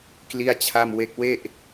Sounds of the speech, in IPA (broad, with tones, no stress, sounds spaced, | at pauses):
k l i˥˩ a̯ t͡ɕʰ a˥˩ m w e˥˩ k̚ w e˥˩ ʔ